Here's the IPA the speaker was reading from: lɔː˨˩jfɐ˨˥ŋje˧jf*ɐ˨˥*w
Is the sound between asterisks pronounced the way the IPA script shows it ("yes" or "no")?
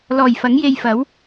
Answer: yes